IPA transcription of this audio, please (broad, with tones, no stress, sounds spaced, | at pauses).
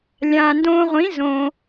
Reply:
lʲ ãː˩ n d õː˧ ʁʷ ĩ˩˥ z õ˩